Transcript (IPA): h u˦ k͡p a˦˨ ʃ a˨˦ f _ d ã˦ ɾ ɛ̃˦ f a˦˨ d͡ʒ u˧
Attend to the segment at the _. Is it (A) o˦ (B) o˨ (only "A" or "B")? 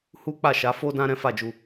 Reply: A